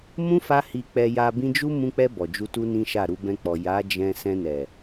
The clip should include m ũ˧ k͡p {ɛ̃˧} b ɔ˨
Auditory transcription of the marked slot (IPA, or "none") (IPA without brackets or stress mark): ɛ˧